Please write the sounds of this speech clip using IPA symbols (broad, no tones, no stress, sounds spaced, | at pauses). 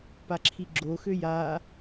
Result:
p a ǁʰ i ɡ͡ǁ o x ø j a